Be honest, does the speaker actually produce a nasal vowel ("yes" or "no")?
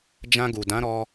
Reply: yes